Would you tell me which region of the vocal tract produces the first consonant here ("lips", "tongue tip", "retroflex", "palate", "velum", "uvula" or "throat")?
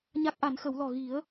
palate